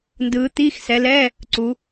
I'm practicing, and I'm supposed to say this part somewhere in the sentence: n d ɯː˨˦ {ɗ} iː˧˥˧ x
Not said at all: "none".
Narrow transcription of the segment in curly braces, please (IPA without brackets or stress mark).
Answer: t̪